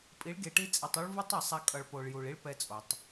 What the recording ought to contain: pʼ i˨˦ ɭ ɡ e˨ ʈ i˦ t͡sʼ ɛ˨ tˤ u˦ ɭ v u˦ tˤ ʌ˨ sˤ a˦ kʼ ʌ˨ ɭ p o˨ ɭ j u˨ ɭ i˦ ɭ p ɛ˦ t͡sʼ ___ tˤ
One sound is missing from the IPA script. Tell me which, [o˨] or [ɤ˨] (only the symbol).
o˨